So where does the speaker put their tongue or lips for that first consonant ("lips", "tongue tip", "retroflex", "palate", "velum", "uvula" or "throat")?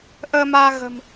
throat